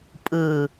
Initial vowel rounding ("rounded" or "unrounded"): unrounded